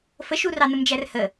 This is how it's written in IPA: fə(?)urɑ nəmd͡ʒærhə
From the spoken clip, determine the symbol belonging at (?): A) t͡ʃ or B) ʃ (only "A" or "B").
B